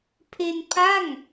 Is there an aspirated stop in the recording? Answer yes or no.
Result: yes